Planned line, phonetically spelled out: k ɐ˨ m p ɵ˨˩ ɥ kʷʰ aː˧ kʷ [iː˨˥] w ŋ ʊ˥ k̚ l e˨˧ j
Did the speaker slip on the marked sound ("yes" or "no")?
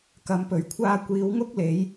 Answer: yes